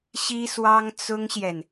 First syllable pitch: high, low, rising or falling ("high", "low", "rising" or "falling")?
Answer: high